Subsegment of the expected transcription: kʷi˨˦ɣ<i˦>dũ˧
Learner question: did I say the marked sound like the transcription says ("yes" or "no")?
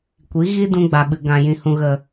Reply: yes